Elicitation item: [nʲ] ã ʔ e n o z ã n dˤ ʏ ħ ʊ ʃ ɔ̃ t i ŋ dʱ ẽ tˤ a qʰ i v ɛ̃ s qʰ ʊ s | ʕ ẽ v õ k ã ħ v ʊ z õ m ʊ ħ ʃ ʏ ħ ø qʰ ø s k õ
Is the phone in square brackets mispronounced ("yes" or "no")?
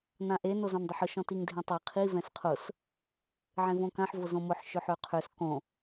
yes